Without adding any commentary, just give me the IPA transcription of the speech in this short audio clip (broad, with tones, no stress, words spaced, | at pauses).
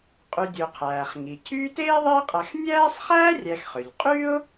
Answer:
qʼy˨dʲu˩ qʰæː˩χŋi˩ cʰyː˦teː˥ðˤiː˦qʼæ˨x nʲæː˥sˤ χæː˥rʲæ˨xχø˩ʎ qʼy˥ʊ̯